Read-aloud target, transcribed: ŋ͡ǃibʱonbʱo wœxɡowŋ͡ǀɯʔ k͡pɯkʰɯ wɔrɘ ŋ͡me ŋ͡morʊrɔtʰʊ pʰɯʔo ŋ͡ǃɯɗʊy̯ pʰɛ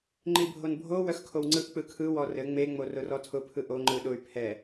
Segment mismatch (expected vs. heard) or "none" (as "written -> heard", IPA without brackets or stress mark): ɡ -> kʰ